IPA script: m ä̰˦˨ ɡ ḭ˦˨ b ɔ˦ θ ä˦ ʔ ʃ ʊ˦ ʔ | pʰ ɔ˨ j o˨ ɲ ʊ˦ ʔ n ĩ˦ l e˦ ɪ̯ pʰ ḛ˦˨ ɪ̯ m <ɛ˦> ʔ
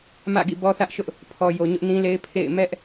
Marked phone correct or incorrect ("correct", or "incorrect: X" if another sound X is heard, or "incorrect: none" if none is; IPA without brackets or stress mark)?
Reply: correct